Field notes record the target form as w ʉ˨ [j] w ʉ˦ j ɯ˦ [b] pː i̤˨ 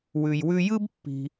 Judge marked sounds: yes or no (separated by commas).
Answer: yes, yes